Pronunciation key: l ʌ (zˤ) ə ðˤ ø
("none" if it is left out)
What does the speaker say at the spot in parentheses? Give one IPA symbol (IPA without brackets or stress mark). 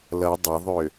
dˤ